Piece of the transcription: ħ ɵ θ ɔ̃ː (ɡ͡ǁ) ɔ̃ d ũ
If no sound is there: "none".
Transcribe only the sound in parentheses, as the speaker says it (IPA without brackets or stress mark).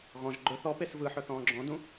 ɡ͡ǁ